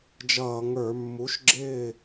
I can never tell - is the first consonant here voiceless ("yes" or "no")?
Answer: no